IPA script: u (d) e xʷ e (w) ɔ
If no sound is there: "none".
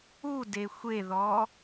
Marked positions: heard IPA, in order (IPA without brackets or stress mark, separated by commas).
d, ð